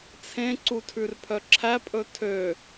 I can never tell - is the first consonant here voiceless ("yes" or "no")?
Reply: yes